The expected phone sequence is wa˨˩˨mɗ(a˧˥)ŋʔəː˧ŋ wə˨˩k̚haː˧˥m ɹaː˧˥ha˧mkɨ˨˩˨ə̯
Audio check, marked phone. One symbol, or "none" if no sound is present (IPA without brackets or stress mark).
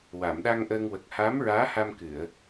a˧